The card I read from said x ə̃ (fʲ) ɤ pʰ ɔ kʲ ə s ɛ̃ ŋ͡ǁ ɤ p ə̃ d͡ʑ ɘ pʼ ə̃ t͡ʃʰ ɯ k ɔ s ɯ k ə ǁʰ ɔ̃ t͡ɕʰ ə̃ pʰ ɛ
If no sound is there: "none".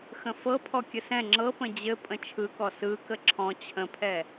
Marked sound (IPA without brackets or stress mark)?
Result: f